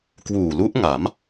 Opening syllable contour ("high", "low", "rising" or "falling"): low